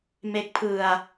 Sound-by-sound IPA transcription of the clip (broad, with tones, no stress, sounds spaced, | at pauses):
m e˦˥ k̚ pʰ ɯ˧ a̯